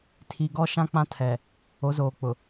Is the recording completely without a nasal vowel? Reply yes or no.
no